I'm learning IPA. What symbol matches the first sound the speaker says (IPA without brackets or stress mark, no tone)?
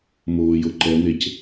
m